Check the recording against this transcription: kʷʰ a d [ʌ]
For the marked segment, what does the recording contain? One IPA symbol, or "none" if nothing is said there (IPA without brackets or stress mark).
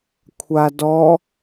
ɔ